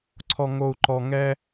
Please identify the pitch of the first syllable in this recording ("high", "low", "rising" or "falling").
low